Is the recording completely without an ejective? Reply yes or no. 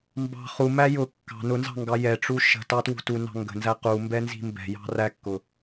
yes